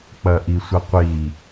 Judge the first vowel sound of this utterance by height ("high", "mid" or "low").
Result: low